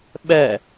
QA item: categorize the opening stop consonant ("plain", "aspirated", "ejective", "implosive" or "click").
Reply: implosive